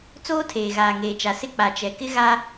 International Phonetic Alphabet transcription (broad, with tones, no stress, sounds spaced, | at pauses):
t͡s oː˦ tʰ eː˨ ɣ aː˨ ŋ eː˨ t͡ʃ a˨ s ɪ˦ k͡p a˨ t͡ʃ ɛ˨ k ɪ˦ ɣ a˦